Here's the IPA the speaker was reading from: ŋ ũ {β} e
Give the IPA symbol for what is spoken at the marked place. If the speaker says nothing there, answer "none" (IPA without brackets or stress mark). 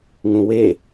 w